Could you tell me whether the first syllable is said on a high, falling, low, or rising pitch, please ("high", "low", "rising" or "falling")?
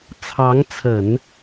rising